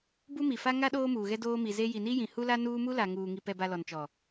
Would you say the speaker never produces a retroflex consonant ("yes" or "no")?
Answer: yes